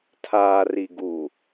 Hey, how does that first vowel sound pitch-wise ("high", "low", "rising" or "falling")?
low